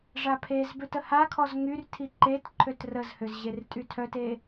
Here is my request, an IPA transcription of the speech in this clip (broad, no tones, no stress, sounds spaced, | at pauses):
ʐ a pʰ e z b ø t ə h a kʰ ɔ z ŋ y r tʰ i ǃ e t ǃʰ ø t r ə z h ø z ʑ e r tʼ y tʰ œ t e